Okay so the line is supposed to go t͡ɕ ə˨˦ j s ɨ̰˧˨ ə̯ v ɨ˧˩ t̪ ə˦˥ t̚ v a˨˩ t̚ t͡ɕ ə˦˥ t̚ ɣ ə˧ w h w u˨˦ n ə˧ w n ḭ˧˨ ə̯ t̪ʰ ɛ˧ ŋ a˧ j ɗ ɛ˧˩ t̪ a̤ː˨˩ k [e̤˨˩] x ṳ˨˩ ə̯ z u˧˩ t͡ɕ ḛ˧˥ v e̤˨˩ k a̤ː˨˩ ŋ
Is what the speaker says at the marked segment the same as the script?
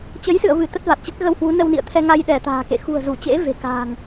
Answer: no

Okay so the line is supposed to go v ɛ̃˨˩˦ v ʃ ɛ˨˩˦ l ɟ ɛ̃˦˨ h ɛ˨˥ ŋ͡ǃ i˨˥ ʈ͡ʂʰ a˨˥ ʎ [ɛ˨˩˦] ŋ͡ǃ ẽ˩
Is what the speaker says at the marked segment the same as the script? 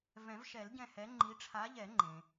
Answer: yes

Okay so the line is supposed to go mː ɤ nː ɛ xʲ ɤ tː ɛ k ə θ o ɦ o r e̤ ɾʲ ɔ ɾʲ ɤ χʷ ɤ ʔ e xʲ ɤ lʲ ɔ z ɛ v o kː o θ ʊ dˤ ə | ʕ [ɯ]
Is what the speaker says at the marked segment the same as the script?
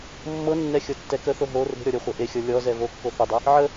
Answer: no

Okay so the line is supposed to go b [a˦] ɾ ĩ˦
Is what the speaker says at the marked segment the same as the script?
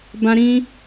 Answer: no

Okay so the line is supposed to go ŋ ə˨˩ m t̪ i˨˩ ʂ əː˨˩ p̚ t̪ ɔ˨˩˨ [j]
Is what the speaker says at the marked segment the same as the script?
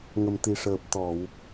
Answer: no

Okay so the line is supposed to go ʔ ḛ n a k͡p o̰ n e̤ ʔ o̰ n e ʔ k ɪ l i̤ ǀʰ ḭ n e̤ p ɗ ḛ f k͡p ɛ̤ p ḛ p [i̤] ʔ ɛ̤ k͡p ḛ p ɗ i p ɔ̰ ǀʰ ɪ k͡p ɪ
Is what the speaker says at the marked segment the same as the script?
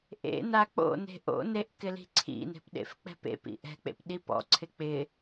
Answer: no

